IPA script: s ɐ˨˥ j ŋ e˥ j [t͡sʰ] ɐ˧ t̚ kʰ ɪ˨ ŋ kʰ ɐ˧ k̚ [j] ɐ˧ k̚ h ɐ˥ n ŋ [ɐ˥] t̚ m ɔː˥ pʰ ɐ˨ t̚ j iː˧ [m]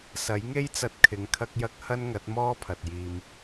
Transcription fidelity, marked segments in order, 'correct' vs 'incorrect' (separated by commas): incorrect, correct, incorrect, correct